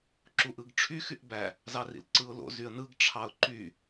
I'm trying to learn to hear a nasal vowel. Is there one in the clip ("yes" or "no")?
no